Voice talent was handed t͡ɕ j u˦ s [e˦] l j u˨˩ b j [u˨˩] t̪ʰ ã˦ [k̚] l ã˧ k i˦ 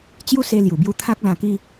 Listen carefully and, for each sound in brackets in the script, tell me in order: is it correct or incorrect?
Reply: incorrect, incorrect, correct

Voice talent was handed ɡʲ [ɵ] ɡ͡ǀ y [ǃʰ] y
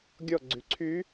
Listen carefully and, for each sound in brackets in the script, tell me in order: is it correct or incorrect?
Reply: incorrect, incorrect

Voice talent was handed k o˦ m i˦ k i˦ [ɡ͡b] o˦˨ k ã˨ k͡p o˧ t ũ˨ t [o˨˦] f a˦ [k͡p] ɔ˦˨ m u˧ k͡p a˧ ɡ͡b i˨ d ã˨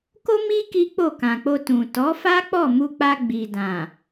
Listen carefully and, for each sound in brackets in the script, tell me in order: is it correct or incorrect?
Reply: incorrect, incorrect, correct

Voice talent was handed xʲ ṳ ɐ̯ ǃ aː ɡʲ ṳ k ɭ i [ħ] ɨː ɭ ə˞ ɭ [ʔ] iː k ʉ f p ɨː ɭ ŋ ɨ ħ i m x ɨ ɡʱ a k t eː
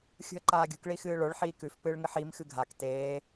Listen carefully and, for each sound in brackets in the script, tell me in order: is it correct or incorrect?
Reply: incorrect, incorrect

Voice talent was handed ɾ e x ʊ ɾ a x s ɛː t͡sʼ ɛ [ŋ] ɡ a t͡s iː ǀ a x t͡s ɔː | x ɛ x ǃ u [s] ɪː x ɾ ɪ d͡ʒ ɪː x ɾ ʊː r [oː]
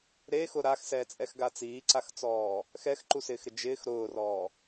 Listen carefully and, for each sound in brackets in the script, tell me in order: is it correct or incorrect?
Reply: incorrect, correct, incorrect

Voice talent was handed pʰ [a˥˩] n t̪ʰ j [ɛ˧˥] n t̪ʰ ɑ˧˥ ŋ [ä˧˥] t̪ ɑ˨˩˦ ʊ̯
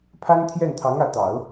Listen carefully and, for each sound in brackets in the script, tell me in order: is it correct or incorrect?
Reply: incorrect, incorrect, correct

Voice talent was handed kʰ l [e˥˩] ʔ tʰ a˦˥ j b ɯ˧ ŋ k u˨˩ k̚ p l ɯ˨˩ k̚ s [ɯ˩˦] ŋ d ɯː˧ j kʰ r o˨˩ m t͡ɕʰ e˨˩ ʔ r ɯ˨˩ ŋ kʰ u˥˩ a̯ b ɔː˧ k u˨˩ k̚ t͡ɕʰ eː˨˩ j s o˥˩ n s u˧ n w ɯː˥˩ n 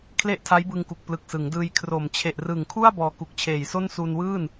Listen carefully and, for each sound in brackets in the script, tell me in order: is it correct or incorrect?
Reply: correct, correct

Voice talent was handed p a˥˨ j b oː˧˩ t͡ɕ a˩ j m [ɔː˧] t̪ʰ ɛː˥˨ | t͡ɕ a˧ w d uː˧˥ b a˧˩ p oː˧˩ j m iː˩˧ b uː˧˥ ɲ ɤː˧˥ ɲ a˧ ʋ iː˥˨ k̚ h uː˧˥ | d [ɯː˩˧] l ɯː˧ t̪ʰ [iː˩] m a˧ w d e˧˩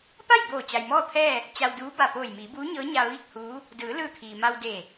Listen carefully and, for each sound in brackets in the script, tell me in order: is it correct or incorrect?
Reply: incorrect, correct, correct

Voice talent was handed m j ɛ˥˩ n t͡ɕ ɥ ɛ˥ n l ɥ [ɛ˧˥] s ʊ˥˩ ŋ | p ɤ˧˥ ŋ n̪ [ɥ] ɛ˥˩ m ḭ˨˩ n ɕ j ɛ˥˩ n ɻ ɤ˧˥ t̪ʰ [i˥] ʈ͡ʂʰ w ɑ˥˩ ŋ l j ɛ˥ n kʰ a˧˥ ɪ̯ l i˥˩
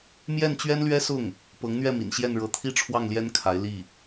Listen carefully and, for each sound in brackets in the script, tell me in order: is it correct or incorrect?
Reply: incorrect, correct, correct

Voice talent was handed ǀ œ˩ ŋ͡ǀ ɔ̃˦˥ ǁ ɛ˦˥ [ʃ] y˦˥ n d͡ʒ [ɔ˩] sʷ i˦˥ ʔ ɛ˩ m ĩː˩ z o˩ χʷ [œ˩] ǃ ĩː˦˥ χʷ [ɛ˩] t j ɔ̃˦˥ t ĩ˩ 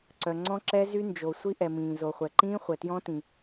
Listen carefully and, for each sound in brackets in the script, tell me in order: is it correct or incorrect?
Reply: incorrect, incorrect, incorrect, correct

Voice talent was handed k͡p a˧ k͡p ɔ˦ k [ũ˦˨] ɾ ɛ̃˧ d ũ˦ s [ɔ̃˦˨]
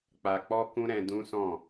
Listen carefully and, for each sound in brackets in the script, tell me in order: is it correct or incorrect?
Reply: incorrect, correct

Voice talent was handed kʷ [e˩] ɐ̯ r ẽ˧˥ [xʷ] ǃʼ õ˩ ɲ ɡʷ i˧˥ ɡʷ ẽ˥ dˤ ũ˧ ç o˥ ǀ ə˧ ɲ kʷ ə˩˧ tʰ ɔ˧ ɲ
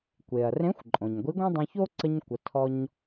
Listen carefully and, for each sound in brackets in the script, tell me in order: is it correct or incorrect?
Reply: correct, correct

